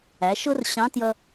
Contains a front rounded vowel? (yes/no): no